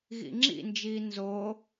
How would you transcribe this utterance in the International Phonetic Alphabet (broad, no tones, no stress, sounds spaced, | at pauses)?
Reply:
ɣ ḭ ŋ͡ǁ ḭ n d͡ʒ iː n z o